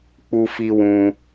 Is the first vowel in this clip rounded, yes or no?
yes